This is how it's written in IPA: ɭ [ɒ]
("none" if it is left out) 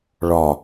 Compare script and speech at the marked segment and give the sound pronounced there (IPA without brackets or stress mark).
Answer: ɒ